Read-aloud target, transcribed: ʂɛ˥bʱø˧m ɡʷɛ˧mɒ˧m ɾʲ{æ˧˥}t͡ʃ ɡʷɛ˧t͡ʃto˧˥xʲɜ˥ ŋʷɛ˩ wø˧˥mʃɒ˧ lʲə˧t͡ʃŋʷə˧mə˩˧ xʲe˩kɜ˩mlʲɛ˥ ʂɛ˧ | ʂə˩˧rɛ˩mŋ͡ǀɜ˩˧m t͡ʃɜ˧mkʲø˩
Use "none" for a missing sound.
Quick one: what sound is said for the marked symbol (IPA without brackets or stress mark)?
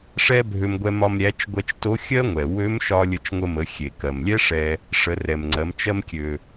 æ˧˥